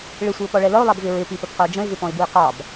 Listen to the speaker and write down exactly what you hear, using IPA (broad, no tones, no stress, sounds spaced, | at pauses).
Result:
ɭ ɪ sʷ i ʊ̯ p ɔ ɭ ɛ l ʌ ʊ̯ lˠ ɑ b v ɪ ɹ ɪ p i p ə p q ə ʊ̯ d͡ʒ ə̃ ɪ̯ v ɪ p ɔ̃ ɪ̯ b u ɪ̯ q ɑ b